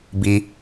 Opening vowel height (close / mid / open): close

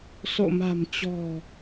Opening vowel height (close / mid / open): mid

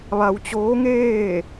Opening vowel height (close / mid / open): open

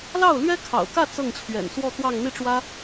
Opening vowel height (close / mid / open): open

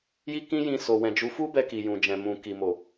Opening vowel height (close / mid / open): close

